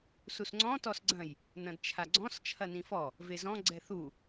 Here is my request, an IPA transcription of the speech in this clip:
s u s ŋ͡ǀ ɔ̃ t ɔ s ɡ͡ǀ ɐ̃ j | n ɐ̃ d t͡ʃʰ a ɡ͡ǀ ɔ̃ s t͡ʃʰ ɐ n ĩ f ɔ | v e z ɔ̃ ɡ͡ǀ ɛ θ u

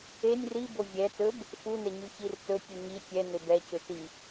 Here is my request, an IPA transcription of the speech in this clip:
e nʲ r i b o vʲ ɛ t ɵ b | f u n ɛ ɲ y ç i r t ɵ tʲ u ɲ i tʲ ɛ n e b ɛ c ø t i

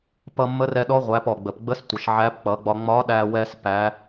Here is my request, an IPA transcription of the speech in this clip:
p ʌ˧ mː ə˧˥ r ɛ˧ ɗ ɔ˧˥ ʁʷ æ˩˧ p ɔ˩ ɡ͡b ə˩ p ɡ͡b ə˧˥ s tʷ ə˩ ʃ ʕ æ˧˥ p k͡p ʌ˩˧ ɡ͡b ɒ˧ ŋ͡m ɒ˧˥ ɗ æ˧ w ɛ˧ s p æ˩˧

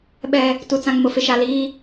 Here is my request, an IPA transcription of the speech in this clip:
ɓ ɛ˨ | t u˨ t͡s ã˨ ŋ m ʊ˨ f ɪ˨ ʃ a˨ l iː˦

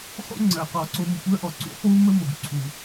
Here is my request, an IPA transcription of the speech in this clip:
χ o̰˦ ŋ͡ǀ ɜ˨ q ɔ˧ ǀ o˦ m ʊ˨ kʷ ɜ˧ ʔ ɔ˨ ǀ ṵ˨˦ χ w u˦ m ə˦ m o˨ ɡ ǀʰ u˨

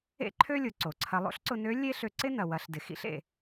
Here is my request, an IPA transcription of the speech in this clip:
ḛ˥ ǃʰ ø˥ lʲ ʊ˩˧ ǀ o˩ ǀʰ ɐ˧ lˠ o̰˥ ɬ ǀ ʊ˧ n ø˧˥ lʲ e˥ ɬ ø˧ ǀ ɪ˥ n ɐ˩ w ɐ˩˧ ɬ d ɪ˩ x ḭ˧ ɬ ḛ˩

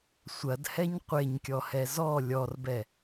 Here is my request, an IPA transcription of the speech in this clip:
sʷ ɐ d h ɛ ɲ qʷ e ɲ kʲ ɔ h ɛ z ɔ lʲ ɔ r b ɛ

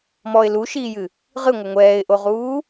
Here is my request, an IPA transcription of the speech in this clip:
m ɔ ɪ̯ l u ʃ iː j ɨ | ʁ ɨ ŋʷ ɘ ŋʷ ɛː ɪ̯ ʔ o ʁ uː

